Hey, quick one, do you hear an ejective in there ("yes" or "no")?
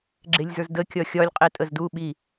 yes